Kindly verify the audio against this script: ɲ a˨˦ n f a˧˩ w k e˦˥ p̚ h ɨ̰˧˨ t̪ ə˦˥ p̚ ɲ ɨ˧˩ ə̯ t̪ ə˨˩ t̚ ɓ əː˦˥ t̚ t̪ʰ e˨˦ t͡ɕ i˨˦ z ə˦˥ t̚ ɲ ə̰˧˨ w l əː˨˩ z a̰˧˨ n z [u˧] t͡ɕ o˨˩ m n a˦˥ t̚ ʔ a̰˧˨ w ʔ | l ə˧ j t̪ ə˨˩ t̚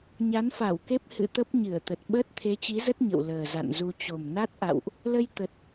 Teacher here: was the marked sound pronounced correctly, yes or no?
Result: yes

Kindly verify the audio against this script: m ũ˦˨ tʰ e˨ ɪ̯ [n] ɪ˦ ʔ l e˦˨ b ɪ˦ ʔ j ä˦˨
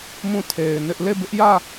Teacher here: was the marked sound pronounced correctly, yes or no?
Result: yes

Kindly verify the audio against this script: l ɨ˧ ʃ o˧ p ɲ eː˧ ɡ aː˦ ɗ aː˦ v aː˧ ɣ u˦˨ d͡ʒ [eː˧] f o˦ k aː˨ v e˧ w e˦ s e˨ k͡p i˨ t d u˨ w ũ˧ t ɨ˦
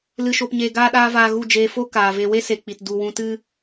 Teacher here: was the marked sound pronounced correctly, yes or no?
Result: yes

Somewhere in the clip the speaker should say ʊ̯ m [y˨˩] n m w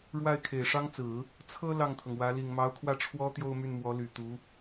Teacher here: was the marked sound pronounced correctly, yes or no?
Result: no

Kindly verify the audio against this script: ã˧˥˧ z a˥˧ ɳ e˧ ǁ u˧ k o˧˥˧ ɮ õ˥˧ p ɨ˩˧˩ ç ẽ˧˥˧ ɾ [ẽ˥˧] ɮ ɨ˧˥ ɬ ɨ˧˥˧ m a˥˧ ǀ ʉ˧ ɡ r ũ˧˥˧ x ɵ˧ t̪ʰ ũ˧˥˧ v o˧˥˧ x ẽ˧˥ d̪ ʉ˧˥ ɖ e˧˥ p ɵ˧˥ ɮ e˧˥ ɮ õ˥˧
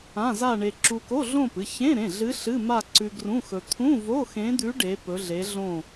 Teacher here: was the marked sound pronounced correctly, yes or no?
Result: no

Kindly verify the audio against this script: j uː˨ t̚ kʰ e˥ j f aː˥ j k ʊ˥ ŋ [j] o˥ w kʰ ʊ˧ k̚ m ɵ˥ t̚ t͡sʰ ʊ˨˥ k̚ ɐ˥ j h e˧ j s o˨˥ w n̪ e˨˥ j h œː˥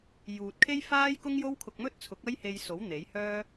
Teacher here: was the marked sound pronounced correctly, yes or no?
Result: yes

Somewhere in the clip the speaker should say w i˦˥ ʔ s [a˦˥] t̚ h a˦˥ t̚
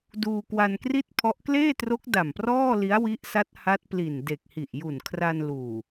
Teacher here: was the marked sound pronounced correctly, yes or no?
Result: yes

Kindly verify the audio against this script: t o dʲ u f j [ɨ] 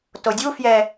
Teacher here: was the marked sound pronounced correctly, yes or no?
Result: no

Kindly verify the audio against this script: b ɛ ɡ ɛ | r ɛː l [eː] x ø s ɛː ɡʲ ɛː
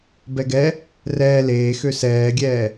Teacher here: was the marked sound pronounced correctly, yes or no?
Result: yes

